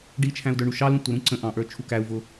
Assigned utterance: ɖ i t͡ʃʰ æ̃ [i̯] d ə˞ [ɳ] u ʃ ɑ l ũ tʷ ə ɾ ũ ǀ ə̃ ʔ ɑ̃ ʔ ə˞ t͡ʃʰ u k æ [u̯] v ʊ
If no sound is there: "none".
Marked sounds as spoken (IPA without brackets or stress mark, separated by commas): u̯, ɳ, u̯